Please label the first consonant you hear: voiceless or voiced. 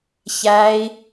voiceless